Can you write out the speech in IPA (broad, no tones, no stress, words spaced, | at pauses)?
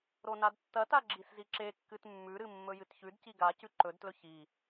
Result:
ɾonadtːɐta ɡ͡ǁisziǁekːɨt mːʉɾɨ mːɵjɨtçʉdci ɡacʉ ǃɵdtlɵ çi